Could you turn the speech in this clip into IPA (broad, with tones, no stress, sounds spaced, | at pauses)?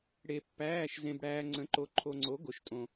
ɽ e˧ pː æː˧˥˧ ʃ z ẽ˧ b ɽ æː˧ ŋ͡ǀ ə̃˨˥ ǃ o˨˥ ǃʰ o˧ ŋ͡ǀ o˨˥ ɡ o˨˥ ʃ tʼ õ˧